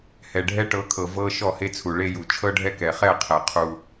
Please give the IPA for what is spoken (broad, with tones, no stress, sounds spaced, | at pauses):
h ɛ˨ ɖʱ ɛ˦ ʈ ɤ˨˦ kʰ ɤ˨ v ɤ˦ ʃ ɔ˦˨ h e˦ t͡sʰ u˨ ɭ e˦ j u˨ t͡ʃʰ ɤ˦ ɖʱ ɛ˦ k ɛ˨ χ ɛ˦˨ qʰ ɛ˨ qʰ u˦